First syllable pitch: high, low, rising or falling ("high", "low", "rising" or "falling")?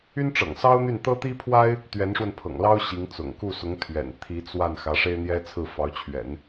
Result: high